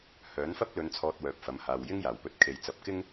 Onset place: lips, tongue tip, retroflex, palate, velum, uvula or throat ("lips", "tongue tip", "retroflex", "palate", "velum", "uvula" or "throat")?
throat